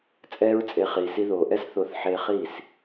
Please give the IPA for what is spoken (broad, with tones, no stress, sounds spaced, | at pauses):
t͡sʼ ɛː˦ ɹ t͡sʼ e˧ χ iː˨ s i˧ ð oː˨ ʔ ɛ˦ s θ o˧ θ ħ eː˧ χ iː˦˨ s